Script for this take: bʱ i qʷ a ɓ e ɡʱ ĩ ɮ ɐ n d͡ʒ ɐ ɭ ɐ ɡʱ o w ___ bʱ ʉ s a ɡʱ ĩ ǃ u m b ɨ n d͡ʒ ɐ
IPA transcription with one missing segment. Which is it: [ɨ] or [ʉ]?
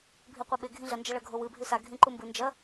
ɨ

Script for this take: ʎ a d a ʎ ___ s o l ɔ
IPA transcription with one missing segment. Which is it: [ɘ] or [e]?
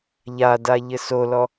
ɘ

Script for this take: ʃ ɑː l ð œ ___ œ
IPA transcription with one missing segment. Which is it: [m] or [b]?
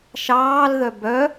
b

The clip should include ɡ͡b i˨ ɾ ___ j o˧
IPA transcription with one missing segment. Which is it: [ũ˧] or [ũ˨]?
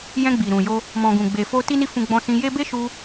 ũ˨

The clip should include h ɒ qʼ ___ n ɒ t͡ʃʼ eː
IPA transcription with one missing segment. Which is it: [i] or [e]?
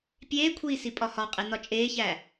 e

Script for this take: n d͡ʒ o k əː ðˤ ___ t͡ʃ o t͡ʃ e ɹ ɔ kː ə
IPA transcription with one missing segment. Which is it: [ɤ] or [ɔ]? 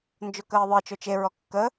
ɤ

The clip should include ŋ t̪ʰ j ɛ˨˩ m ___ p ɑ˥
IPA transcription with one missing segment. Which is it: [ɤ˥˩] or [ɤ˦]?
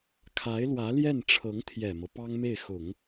ɤ˦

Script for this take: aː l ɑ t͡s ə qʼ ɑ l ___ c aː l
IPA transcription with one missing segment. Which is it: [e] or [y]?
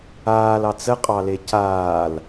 e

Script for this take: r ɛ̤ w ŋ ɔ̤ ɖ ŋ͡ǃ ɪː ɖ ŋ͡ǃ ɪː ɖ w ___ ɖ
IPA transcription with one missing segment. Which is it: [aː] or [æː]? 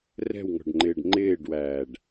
æː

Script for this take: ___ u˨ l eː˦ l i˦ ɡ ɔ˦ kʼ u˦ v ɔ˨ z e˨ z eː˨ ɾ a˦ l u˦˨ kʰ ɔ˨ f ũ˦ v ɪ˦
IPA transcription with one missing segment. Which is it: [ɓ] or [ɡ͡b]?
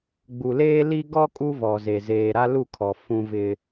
ɡ͡b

